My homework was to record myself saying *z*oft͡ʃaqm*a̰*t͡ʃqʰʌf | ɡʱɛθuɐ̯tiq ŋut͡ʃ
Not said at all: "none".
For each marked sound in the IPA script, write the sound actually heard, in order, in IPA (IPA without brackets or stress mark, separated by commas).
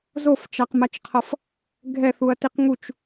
z, a